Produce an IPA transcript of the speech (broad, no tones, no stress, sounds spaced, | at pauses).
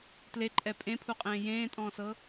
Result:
t l e ǃʼ ɛ pʼ ẽ pʰ u qʼ ẽː j ẽː tʼ ɔ̃ː s ɤ